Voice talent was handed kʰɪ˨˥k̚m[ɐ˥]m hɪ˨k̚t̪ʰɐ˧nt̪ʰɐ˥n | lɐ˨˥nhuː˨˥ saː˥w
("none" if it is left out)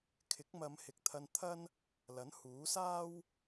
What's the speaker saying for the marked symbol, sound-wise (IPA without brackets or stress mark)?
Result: ɐ˨˧